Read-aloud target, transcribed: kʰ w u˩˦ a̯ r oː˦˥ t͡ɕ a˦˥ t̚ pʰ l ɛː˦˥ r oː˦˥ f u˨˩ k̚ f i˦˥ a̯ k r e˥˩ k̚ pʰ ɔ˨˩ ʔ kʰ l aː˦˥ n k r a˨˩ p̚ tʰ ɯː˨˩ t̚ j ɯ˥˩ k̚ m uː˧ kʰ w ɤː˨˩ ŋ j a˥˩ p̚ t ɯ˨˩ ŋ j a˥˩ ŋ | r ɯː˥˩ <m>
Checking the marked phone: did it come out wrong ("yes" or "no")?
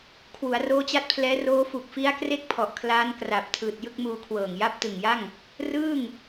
yes